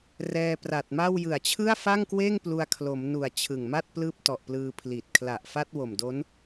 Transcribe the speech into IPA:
r ɛː˧ p r a˨˩ t̚ m a˥˩ w j ɯ˨˩ a̯ t͡ɕʰ ɯ˥˩ a̯ f a˥˩ ŋ k w eː˥˩ ŋ p l u˧ a̯ kʰ l o˩˦ m n u˨˩ a̯ t͡ɕʰ ɯ˨˩ ŋ m a˥˩ t̚ p l ɯː˦˥ p̚ t ɔ˨˩ ʔ p l ɯː˧ pʰ l i˨˩ t̚ kʰ l a˨˩ ʔ f a˦˥ t̚ w o˨˩ m d o˦˥ n

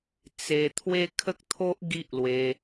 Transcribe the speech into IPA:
t͡s e˧ t̪ʰ w e˦ kʰ ə˦ k̚ t̪ʰ o˦ ʔ ɡ i˦ ʔ l w e˧

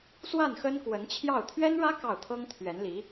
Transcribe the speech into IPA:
s w a˥˩ n x ə˥ n k w ə˧˥ n t͡ɕʰ j ɑ˥˩ ʊ̯ t̪ʰ ɥ ɛ˥ n ɻ ä˥ k ɑ˥˩ ʊ̯ t̪ʰ ɤ˥ ŋ t̪ʰ ɥ ɛ˧˥ n l i˧˥

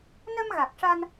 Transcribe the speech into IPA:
n ə˧ m ɣ a˨˩ k̚ ʂ a˧ n

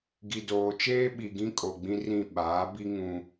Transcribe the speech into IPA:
ɡ i˨ d oː˨ t͡ʃ eː˦ ɓ i˨ ɡ ĩ˦ kʼ o˨ ɡ͡b ĩ˦ r ĩ˦˨ ɓ aː˨˦ b i˦ ŋ ũ˦

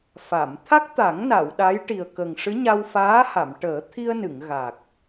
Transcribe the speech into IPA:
f a˨˩˨ m t̪ʰ a˦˥ k̚ t̪ a˨˩˦ ŋ n a˨˩˨ w ɗ a˧˥ j ʈ i˨˩ ə̯ k ə˨˩ ŋ ʂ ɨ˧˥ ɲ a˧ w f aː˧˥ h a˨˩˨ m ʈ əː˨˩˦ t̪ʰ i˧ ə̯ n ɨ˨˩˨ ŋ ɣ a˨˩ k̚

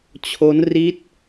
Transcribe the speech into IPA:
t͡ɕʰ o˦˥ n r i˦˥ t̚

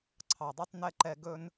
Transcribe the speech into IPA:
ǀʰ ɑ˨ dˤ y˦ tˤ n ɛ˦ ǃ ɛ˧ ɡ ɵ˧ n

